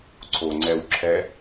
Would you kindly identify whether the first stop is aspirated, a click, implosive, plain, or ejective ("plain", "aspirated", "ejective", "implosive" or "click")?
click